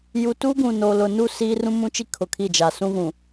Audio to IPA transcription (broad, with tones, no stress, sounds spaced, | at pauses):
j u˨ t u˦ ɡ ũ˨ n o˨ l ʊ˨ n u˦˨ s iː˦ r ũ˦ m ũ˦ t͡ʃ i˦ kʰ ʊ˨ kʰ i˦˨ d͡ʒ a˨ s ũ˦ ɣ ũ˨